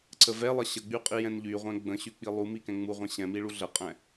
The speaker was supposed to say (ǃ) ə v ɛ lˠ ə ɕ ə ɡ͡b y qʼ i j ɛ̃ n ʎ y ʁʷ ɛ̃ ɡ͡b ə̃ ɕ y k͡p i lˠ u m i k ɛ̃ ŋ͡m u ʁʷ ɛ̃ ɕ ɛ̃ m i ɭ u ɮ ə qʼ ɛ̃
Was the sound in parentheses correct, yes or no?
no